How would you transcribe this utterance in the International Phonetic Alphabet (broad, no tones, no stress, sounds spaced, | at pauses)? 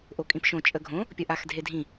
ʔ o kʼ ĩ p ʃ õ t͡ʃʼ ə ɡʱ õ | pʲ ə ʔ a x dʱ e dʱ ĩ